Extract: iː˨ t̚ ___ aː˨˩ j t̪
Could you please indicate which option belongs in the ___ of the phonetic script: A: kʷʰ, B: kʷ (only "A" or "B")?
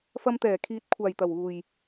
A